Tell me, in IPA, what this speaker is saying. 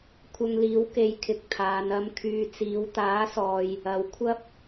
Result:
kʷʰ ɐ˧ ŋ l iː˨˥ w k e˨˥ j kʰ ɪ˨ k̚ t̪ʰ aː˨˧ n ɐ˨˧ m kʰ yː˨ t͡s iː˨˧ w t̪ aː˨˥ s ɔː˨ j | ɐ˨˧ w kʷʰ ɐ˥ p̚

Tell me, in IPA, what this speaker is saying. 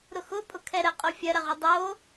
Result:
ɾ ʊ x ʊ pʼ ʊ kʰ ɛ ɾ ə qʼ o fʲ ɐ ɾ ɐ ʁ ʊ dˤ o

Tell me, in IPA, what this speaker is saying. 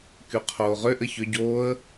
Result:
k y qʰ oː ʁ ʏ ʔ ɘ ç ʏ ɟ oː ə̯

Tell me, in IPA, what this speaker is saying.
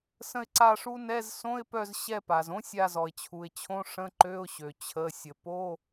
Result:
s ə̃˦˨ ɪ̯ ǀ a˦˨ ʂ u˦˥ n ɛ˧˥˧ z s õ˧˥˧ ɪ̯ p œ˦˨ z ɕ ɛ˦˨ p a˩ z õ˦˥ sʲ a˦˨ z ɔ˩ ɪ̯ t͡ɕʰ u˩ ɪ̯ t͡ɕʰ õ˧˥˧ ʂ ə̃˧˥˧ ǃ ø˧˥˧ ʊ̯ ɕ ø˩ t͡ɕʰ ə˩˧˩ sʲ ə˩ p o˧˥˧

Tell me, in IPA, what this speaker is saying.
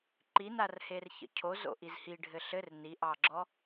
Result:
ǃ i n a r h e r ç ə̰ cʰ o z o̰ ʔ i z h i ɖʱ ɘ ɬ ɘ r n i ʔ ɑ ɡ͡ǁ ɔ

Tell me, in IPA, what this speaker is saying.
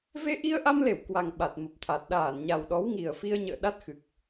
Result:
v e˧ ʔ i˧ ə̯ ʔ a˧ m l e˧˩ w k w a˨˩ ŋ ɓ a˨˩ t̚ m ə˨˩ p̚ t̪ʰ a˨˩ t̚ ɗ aː˧˩ n ɲ a˨˩ w ɗ ɔ˨˦ w ŋ i˨˩ ə̯ f i˧ ə̯ ɲ ə̰ː˧˨ ɗ a˦˥ t̚ x ɨ˨˩ k̚

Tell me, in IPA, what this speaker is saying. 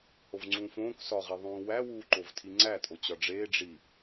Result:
h o v ŋ͡ǀ ũː f õː k s ɒ ʁ i ðˤ ũː w æ w uː ǃ o v tʰ i ŋ͡ǀ æ tʼ o t͡ɕ ɒ ɖ͡ʐ eː ɖ͡ʐ i

